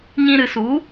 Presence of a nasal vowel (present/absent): present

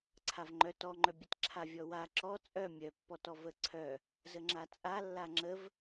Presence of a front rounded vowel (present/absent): present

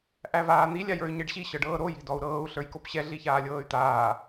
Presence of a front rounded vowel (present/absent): present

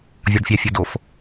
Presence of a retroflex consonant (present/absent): present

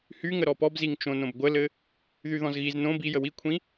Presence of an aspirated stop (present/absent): present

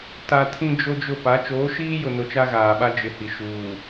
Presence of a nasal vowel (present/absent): present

